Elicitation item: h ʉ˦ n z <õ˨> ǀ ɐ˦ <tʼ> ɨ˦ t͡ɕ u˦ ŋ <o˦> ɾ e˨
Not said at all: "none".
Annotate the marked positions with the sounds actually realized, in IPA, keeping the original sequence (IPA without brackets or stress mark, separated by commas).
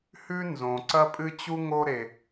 õ˨, pʼ, o˦